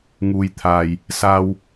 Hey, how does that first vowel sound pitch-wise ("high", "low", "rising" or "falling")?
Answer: low